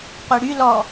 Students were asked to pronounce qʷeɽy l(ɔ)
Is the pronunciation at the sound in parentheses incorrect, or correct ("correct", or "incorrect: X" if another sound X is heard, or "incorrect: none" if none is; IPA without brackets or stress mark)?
correct